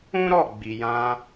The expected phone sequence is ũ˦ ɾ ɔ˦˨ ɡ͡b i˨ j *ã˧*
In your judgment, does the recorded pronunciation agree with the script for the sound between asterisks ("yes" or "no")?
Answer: yes